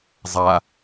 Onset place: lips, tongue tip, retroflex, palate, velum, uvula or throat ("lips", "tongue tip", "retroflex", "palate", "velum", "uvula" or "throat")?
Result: tongue tip